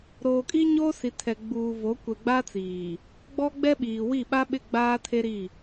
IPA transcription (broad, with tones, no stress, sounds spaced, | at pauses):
ɾ oː˨ kʼ i˦ ɲ oː˦ s i˨ tʰ ɛ˨ ɡ͡b uː˨ v o˨˦ kʷ ɛ˨ ɡ͡b a˦ t͡s iː˨ | ɡ͡b ɔ˦ ɡ͡b ɛ˦ ɓ iː˨ w i˦˨ ɓ a˦ ɓ ɪ˦˨ ɡ͡b aː˦ tʰ e˦ ɾ i˦˨